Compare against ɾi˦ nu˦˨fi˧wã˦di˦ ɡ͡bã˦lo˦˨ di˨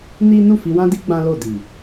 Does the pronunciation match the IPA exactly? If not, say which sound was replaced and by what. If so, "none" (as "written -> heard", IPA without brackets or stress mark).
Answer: ɾ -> n